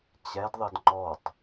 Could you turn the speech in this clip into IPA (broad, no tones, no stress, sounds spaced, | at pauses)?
t͡ɕ ɛ d ðˤ ɪ d ŋ͡ǃ ɔ tˤ